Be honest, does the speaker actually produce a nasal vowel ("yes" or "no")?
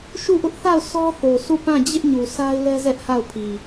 yes